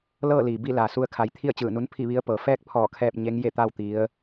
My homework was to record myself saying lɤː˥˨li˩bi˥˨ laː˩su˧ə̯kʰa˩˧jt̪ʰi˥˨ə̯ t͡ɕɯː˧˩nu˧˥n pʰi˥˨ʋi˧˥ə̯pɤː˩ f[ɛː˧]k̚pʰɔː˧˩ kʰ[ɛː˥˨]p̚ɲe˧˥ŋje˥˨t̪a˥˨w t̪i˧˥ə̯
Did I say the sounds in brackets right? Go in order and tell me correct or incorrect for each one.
incorrect: ɛː˥˨, correct

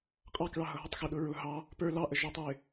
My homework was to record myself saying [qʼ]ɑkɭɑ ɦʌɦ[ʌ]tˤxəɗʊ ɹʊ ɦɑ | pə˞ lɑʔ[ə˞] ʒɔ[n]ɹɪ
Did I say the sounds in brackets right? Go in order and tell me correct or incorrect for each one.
correct, correct, incorrect: ə, incorrect: tˤ

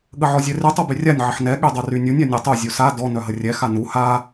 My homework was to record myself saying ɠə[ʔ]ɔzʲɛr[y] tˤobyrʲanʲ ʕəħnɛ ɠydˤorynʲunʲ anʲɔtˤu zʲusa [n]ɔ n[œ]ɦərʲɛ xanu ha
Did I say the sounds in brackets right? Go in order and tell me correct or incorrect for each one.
incorrect: ʕ, correct, incorrect: d, correct

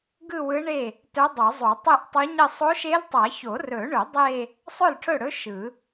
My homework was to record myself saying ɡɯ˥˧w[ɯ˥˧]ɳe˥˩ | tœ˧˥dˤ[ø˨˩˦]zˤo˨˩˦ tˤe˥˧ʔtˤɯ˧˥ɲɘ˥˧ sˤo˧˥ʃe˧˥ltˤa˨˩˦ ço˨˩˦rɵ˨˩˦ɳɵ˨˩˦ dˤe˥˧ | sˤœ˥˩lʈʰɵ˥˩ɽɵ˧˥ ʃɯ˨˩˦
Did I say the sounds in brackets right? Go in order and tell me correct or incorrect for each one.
incorrect: ɯ˧˥, incorrect: œ˨˩˦

